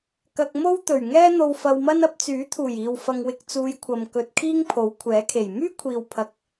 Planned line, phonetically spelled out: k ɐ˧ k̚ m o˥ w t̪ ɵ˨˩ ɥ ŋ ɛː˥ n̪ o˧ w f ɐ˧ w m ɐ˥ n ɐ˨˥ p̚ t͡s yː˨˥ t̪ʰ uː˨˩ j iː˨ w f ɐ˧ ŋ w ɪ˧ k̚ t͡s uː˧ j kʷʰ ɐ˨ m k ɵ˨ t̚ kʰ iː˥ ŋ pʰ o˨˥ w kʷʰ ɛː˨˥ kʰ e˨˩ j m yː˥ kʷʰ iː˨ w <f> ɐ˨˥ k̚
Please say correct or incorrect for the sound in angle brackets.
incorrect